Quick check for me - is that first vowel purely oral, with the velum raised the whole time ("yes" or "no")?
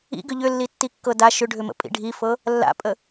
yes